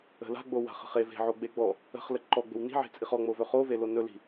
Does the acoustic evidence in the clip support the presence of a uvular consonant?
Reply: yes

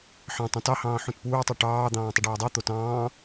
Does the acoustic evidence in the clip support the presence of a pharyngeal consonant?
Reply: yes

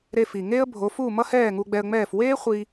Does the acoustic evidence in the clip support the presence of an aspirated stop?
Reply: no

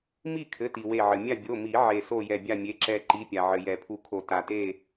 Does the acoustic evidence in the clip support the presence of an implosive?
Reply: no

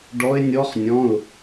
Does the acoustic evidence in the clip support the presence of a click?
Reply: no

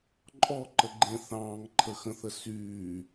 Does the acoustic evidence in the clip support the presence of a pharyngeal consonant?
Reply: no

